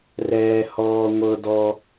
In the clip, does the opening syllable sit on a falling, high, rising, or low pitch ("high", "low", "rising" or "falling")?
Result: low